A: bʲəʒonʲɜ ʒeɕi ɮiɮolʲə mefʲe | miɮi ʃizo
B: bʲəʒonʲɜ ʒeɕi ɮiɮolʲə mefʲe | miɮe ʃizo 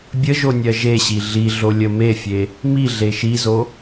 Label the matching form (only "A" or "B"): B